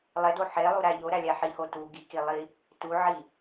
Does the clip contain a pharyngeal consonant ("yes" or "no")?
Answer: yes